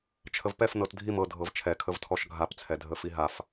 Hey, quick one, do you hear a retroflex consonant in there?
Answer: no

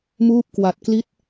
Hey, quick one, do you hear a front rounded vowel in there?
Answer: no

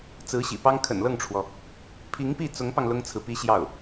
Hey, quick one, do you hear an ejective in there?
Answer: no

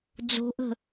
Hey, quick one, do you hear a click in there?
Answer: no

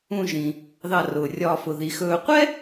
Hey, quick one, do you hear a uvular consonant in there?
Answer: yes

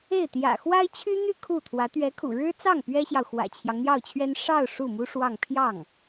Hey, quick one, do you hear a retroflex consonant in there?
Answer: yes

